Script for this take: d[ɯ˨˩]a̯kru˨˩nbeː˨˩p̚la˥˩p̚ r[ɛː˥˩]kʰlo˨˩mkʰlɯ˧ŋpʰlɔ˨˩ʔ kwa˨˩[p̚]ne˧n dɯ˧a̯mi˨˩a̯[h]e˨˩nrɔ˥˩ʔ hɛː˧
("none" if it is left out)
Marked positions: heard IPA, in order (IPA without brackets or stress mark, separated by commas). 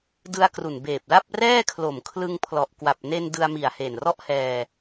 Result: ɯ˧, ɛː˥˩, p̚, h